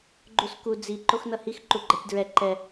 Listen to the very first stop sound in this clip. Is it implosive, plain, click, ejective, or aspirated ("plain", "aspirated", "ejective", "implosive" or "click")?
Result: click